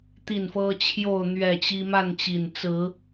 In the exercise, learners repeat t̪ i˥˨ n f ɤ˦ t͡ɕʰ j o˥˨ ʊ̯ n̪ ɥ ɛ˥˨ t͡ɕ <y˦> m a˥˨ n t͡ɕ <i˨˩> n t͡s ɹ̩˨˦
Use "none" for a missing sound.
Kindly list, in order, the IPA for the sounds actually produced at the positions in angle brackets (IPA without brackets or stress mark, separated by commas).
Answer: i˦, i˨˩